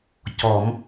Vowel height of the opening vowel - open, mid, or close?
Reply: mid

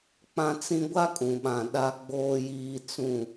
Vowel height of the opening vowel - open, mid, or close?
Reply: open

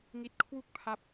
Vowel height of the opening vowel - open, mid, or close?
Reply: close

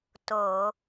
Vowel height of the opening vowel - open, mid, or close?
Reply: mid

